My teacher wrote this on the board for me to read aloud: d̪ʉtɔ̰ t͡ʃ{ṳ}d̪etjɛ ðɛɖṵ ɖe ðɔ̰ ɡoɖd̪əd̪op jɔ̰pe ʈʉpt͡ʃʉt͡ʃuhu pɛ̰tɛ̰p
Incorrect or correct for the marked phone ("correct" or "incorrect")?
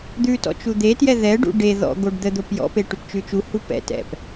incorrect